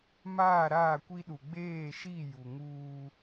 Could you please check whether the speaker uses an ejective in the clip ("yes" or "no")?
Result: no